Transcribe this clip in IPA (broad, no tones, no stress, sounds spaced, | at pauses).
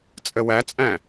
t͡sʼ ə w æ t͡sʼ æ̃